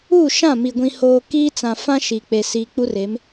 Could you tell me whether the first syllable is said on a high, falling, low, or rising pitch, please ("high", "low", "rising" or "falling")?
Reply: falling